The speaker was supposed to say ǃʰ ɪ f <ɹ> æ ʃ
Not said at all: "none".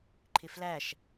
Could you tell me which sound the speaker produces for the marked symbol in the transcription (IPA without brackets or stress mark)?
l